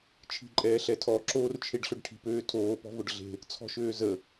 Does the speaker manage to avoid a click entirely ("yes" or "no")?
no